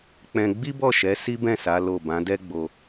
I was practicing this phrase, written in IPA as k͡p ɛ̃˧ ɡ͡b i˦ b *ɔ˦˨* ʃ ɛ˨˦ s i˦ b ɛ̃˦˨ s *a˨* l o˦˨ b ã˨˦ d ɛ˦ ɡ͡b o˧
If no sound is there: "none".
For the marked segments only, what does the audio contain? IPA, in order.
ɔ˦˨, a˨˦

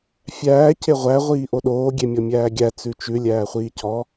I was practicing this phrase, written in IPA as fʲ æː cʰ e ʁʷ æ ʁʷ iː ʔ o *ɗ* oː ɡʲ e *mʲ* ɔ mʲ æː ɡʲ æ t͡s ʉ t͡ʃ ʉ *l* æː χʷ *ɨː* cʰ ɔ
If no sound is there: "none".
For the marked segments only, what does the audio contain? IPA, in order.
ɗ, mʲ, lʲ, iː

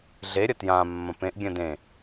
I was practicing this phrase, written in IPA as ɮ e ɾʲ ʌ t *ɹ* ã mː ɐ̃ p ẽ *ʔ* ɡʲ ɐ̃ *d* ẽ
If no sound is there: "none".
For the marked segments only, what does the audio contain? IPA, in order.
j, ʔ, d

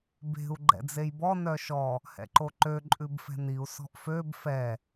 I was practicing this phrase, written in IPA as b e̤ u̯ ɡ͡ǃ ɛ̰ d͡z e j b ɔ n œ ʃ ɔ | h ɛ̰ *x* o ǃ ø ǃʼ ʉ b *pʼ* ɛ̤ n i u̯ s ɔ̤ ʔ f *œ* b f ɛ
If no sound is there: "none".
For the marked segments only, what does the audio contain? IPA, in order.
ǃ, f, ø

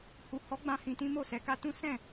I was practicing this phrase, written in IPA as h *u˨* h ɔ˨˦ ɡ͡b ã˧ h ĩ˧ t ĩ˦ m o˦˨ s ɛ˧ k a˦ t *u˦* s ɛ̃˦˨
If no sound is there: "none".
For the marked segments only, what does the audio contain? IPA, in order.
u˨, ũ˦

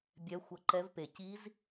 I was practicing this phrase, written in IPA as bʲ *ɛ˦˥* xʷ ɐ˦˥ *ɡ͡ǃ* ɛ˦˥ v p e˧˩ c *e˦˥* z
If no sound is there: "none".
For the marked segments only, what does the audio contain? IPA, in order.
ɛ˦˥, ǃ, i˦˥

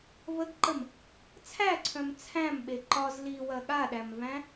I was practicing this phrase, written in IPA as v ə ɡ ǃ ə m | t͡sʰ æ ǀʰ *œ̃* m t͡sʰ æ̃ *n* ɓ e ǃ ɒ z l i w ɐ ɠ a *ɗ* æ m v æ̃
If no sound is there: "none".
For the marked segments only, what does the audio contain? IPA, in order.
œ̃, m, ɗ

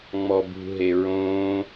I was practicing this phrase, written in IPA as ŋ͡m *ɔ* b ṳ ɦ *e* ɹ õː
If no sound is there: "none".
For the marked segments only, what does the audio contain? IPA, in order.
ɔ, e

